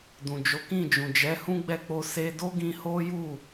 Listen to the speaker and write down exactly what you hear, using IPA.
d ũ˨ d͡ʒ o˨˦ k ĩ˦˨ d͡ʒ ũ˨ d͡ʒ ɛ˨˦ h ũ˦ ɡ͡b ɛ˦˨ k͡p o˧ s e˧ d o˦ ɡ ĩ˧ h o˦ j u˦˨

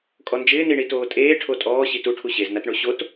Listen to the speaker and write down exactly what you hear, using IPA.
kʼ ɔ n d͡ʒ ɪː n i ɳ i t oː tʼ eː ʈʰ o tʼ ɔː ɕ i t u ʈʰ u ɕ e z n a t ɳ o ɕ o t

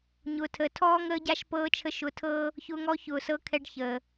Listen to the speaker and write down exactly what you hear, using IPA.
ɲ ʊː˨ tʰ əː˨ tʰ ɔː˦ ŋ əː˦ ɟ a˦ ʃ p ɤː˧ t͡ʃʰ ə˧ ʃ ʊ˧ tʰ ɤː˦ | ç ʊː˧ ŋ ɔ˧ ç ʊː˨ s ɤ˧ kʰ ɛ˧ ɖ ç əː˨

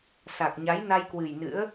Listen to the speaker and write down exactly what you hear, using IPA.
s a˨˩ k̚ ɲ a˨˦ j n a˧ j k w ɨ˨˩ j n ɨ̰˧˥ ə̯

